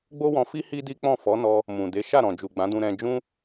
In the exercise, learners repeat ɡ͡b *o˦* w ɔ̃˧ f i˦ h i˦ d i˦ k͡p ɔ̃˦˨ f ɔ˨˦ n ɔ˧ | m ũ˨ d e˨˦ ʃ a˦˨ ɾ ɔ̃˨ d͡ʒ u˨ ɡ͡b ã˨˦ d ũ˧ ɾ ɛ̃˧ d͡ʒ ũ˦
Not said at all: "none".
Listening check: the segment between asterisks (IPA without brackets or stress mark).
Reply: o˦